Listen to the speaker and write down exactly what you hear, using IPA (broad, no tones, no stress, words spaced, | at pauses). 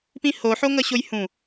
pĩho ħoŋʌɕojhũ